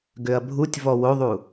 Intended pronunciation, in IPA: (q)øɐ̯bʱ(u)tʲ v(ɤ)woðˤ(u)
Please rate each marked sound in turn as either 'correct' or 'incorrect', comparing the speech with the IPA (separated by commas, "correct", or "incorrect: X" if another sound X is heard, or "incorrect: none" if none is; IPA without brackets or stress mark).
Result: incorrect: ɡ, correct, incorrect: ɔ, correct